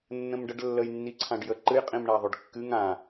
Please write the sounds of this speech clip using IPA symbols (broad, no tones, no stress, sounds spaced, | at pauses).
nː ə̃ m ɖ ə ɖ lː ə j nː i ǀʰ ã ɖ j ə ǃ ɨ j qʼ ĩ m ɳ a ðˤ ʏ ɖ kː ɨ ŋ ã